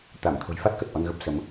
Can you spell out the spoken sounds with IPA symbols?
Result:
t̪ a˧˩ m t̪ʰ o̤˨˩ j f a˦˥ t̚ k ə˨˩ t̚ ʔ ɔ˧ n ɣ ə˦˥ p̚ s ə˨˦ m

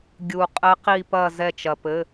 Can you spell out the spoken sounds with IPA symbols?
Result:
ɡʲ u˧ qʼ ɘ˦˥ q i˥˧ p ɐ˥˧ z ɛ˥˧ t͡ʃ ɐ˧ p ɘ˧˥˧

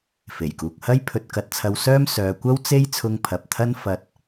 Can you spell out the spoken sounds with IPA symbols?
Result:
f e˨˩ j k uː˨ k̚ h ɐ˥ j pʰ ɵ˧ t̚ k ɐ˧ t̚ t͡sʰ ɐ˧ w s œː˥ m s œː˨ kʷ ɐ˥ w t͡s e˥ j t͡sʰ ʊ˧ ŋ pʰ ɐ˨ p̚ t̪ʰ ɐ˥ n f ɐ˧ t̚

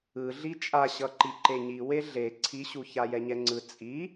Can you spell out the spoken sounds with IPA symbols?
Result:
ɯ ɮ i t͡ʃʼ a ɕ ʌ ǃ i ǃ e ɲ i w e ɮ e ǀʰ i ɕ u ç a j ɛ ɲ ɛ ŋ͡ǀ ɯ t͡sʼ i

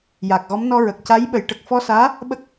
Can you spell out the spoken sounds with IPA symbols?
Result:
j a˨˩ k̚ ɣ ɔ˧˥ m n ɔ˧ ɹ ə˨˩ k̚ c a˧˥ j ɓ ə˨˩˦ j ʈ ə˨˩ k̚ f ɔ˧ s aː˧˥ | ɓ ə˦˥ k̚

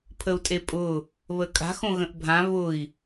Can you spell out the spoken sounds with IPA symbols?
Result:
pʰ ə u̯ tʼ e pʼ ʊ | β ə kʼ a̤ x õ ɣ ə̃ ʔ bʱ ã β ʊ i̯

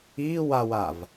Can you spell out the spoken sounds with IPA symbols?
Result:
iː w a w a v

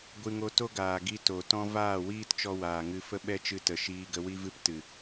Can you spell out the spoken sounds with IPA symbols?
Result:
ɡʷ ɨ˧ ŋ o˧ t o˦ ɡ aː˨ ɡ i˧ t o˨ t ɔ̃˦ v aː˦˨ w iː˦ t t͡ʃ ɔ˧ w aː˨ ŋ ɨ˧ f ə˦ ɓ ɛ˦ t͡ʃ ɨ˧ t ə˨ ʃ iː˧ ɡ ə˧ w i˦ v ɨ˦ p t ɨ˨

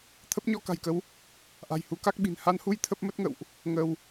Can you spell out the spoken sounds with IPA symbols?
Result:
t̪ʰ ə˦˥ p̚ ɲ ɔ˧ k a̤˨˩ j k ə˨˦ w | ʔ a̤˨˩ j h u˨˦ k a˦˥ k̚ ɓ i̤˨˩ n h a˧ n h u˧ j t̪ʰ ə˦˥ p̚ m ə˦˥ t̚ ŋ ə̰˧˨ w ʔ | ŋ ə˧ w

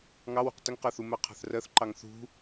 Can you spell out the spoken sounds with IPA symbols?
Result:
ŋ ɑ w ṳ q t ə ŋ q ɜ θ u m ɜ qʰ ɑ̤ θ r ɜ θ ǃ ɑ ŋ θ ṳ

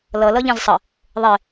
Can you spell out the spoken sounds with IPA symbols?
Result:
l ʌ l ʌ ʎ ɛ̃ z sˤ ə | ðˤ e

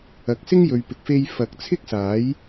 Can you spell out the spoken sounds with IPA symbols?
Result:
ɐ˨ k̚ s ɪ˥ ŋ j ɵ˨ ɥ p ɪ˨ k̚ f e˧ j f ɐ˨˥ k̚ t͡sʰ ɪ˥ k̚ s aː˨˥ j

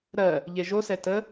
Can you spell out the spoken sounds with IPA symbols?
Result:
ɾ ɜ | ʎ e ʒ o s ɛ t ə

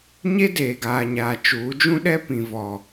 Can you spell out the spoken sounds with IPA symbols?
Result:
ɲ e˦ d eː˨ ɡ aː˨ ɲ aː˨ t͡ʃ uː˨˦ d͡ʒ ũ˦ ɗ ɛ˦ p ĩ˨ v ɔ˨

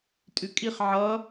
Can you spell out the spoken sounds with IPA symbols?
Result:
tʼ ʉ kʼ i χ ʕ ʌ

